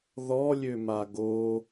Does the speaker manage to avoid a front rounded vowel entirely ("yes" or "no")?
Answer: no